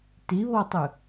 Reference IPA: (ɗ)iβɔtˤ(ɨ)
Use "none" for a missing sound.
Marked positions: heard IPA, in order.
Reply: t, ɨ

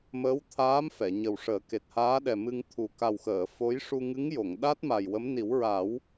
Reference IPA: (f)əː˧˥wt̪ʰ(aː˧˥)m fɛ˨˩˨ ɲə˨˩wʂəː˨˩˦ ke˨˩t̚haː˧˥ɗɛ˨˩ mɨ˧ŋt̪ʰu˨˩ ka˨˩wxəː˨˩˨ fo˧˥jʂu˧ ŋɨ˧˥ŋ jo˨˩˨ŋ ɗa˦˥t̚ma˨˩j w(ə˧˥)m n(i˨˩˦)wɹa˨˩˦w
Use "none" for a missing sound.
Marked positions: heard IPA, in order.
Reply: m, aː˧˥, ə˧˥, i˨˩˦

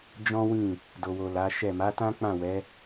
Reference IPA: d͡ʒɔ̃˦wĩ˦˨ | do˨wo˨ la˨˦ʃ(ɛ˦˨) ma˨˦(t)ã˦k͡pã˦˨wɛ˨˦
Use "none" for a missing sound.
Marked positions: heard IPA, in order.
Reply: ɛ˦˨, t

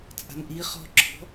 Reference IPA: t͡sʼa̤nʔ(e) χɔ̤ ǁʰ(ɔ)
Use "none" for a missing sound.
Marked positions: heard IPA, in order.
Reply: i, ɔ̤

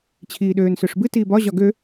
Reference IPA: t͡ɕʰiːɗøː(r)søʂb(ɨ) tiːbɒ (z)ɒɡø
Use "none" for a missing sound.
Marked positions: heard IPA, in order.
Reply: n, ɨ, ʑ

